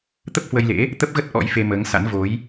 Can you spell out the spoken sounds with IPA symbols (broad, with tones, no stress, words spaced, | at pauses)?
t̪ə˦˥p̚hwə˧jlḛ˧˥ | t̪ə˦˥p̚ɣə˦˥t̚ ʔɔ̰˧˥jfe˧məː˨˦ŋsa̰˧˥n vo˨˦j